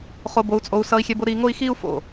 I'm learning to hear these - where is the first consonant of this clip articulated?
uvula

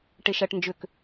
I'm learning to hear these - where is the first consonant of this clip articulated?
retroflex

